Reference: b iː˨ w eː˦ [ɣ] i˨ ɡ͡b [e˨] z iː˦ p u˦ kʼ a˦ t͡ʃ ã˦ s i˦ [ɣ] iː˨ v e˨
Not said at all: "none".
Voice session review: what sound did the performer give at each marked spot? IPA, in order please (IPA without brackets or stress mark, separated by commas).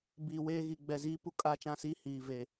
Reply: ɣ, ɛ˨, h